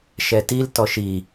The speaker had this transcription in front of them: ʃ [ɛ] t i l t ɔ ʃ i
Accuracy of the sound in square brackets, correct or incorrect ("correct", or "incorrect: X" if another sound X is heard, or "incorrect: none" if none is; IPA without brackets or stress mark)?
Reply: correct